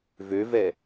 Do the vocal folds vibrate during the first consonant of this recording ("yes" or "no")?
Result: yes